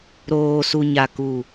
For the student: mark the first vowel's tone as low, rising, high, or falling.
low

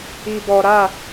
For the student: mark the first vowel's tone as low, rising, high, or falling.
low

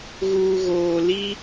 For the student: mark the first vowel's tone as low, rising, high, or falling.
low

